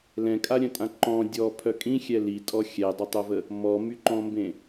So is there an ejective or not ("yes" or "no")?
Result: yes